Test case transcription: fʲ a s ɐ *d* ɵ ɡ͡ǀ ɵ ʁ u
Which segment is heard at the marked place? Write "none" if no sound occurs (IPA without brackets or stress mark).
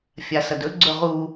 d